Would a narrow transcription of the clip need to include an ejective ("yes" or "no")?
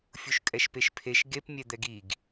yes